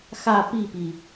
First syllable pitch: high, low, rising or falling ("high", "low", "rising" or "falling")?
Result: falling